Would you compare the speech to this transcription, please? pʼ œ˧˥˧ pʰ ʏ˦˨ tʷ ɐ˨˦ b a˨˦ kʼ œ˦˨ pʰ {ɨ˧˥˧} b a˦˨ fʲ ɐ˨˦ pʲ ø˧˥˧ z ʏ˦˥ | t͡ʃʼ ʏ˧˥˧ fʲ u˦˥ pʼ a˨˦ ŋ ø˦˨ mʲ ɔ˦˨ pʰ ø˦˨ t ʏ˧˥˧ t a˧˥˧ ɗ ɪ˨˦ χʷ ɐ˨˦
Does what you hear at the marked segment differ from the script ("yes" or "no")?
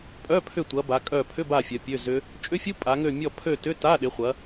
yes